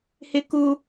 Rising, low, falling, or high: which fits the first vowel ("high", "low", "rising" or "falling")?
high